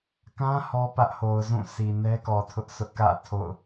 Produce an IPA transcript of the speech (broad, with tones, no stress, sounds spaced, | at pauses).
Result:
k ã˦ h ɔ˦ p ä˦ ʔ h o˨ ʊ̯ z ũ˦˨ s i˨ n ɛ˦ k ɔ˨ tʰ ʊ˦ ʔ sʰ ʊ˦ ʔ k ä̰˦˨ tʰ o̰˦˨ ʊ̯